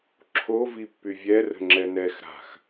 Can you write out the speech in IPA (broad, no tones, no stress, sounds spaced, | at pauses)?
ǁʰ o v i pː y vʲ ɛ r ə̤ ŋ͡ǁ ɛ n ɛ x ɾ a̤ x